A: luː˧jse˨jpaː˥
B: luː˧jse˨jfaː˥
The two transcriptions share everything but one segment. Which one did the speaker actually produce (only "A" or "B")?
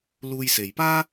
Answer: A